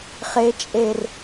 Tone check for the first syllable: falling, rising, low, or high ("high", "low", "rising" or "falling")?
low